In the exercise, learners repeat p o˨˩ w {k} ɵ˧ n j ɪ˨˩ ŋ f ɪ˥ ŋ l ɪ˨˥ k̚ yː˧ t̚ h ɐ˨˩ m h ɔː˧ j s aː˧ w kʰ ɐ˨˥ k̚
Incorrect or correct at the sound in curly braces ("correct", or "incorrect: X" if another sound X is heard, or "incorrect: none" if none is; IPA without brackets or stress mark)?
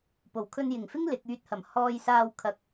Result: incorrect: kʰ